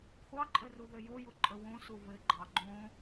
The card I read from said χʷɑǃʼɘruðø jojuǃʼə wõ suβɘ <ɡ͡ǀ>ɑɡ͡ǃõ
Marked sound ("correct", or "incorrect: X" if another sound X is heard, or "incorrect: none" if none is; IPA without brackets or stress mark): incorrect: ɡ͡ǃ